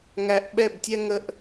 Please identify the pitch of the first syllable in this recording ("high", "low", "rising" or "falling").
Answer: low